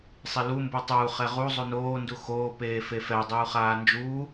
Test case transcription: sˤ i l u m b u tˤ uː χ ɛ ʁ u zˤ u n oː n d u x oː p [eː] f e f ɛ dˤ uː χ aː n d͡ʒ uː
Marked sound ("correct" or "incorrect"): correct